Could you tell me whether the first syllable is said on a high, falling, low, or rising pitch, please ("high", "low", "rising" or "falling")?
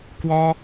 high